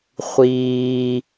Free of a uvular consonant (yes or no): no